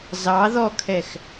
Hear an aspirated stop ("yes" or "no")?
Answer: yes